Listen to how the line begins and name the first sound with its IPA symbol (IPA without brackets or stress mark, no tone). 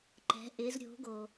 ǃ